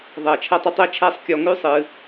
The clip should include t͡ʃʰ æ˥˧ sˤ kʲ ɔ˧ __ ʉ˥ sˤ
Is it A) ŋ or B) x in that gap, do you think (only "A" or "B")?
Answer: A